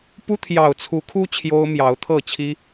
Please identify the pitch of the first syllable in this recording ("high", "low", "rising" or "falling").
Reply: high